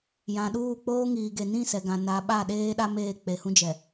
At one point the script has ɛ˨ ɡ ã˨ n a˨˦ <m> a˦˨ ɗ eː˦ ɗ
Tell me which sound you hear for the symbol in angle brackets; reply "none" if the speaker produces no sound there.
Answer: ɓ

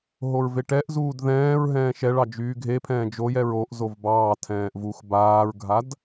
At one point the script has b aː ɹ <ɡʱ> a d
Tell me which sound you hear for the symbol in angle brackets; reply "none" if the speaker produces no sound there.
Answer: ɡʱ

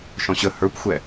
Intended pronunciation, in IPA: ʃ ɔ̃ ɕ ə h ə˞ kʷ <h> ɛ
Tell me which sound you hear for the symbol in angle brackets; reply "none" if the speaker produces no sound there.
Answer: xʷ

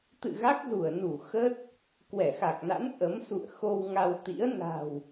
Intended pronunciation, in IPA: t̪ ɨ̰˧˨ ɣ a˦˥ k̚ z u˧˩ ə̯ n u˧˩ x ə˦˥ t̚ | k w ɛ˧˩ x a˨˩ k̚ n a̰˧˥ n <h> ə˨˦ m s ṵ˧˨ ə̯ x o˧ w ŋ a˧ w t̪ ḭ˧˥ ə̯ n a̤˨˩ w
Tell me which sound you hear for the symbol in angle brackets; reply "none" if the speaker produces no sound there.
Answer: ʔ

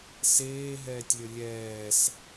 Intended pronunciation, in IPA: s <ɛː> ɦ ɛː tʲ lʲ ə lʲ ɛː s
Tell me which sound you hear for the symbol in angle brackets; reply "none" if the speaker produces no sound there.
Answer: eː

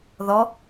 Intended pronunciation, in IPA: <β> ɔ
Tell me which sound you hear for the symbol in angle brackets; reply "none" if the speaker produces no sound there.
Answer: ð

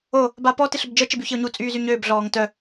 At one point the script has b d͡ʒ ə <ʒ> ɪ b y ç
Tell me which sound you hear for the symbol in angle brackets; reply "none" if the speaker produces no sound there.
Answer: t͡ʃ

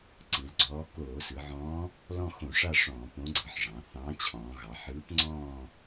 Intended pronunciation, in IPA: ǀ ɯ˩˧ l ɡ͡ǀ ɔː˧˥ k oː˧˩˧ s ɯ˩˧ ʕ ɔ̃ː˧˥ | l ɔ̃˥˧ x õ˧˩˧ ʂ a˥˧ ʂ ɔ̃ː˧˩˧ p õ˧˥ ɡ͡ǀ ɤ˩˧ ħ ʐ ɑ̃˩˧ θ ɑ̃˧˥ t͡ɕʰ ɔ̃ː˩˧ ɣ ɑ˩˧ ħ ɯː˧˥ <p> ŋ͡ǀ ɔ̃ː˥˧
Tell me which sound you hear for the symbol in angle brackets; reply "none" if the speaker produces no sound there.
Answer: p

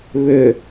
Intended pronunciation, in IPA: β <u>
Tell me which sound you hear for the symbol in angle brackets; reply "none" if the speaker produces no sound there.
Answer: ʏ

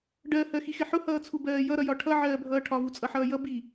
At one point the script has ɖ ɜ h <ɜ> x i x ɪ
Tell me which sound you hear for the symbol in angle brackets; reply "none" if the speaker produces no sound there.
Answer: ɜ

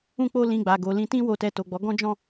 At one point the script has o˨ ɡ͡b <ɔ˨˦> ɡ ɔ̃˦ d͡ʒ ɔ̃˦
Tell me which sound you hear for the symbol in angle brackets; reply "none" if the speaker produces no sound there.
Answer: ɔ˨˦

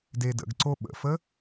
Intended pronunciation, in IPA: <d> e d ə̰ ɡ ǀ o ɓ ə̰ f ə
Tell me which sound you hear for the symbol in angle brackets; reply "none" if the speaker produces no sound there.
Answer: d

